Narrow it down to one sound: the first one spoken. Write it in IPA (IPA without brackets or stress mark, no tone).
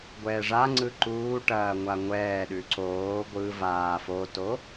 ɡʷ